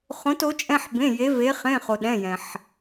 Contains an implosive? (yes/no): yes